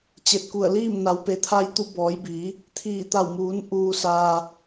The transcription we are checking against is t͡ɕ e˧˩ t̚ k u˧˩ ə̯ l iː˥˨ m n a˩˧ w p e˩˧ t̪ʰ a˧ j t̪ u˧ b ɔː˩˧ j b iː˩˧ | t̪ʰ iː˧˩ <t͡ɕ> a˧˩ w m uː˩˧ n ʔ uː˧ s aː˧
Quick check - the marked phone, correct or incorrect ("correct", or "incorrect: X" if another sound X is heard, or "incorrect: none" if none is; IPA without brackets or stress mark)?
incorrect: t̪